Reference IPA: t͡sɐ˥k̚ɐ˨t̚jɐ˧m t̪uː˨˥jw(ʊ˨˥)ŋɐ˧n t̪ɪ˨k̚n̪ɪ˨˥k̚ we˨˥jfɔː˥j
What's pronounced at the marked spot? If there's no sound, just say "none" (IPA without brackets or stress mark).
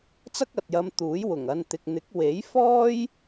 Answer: ʊ˨˩